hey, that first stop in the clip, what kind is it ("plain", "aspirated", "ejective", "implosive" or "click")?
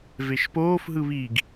plain